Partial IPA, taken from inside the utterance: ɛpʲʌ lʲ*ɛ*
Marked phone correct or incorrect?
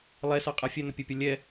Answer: correct